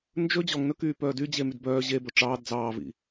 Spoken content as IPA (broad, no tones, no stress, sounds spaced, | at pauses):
n d͡ʒ ɵ d͡ʑ ɔ ŋ n ɵ k yː p œː d y d͡ʑ e m y d b œː ʑ e b ɵ ʈ͡ʂ ɑː d d͡z ɑː v ḭ